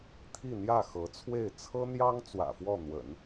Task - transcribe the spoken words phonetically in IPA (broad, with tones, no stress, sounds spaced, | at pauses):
t̪ʰ i˥˧ n̪ j ä˥˩ x ɤ˧˥ t͡sʰ w e˥˩ ɪ̯ t͡sʰ ɤ˥ n̪ j ɑ˥ ŋ t͡s w ä̰˨˩ f w ɔ˥˩ n̪ w ə̰˨˩˦ n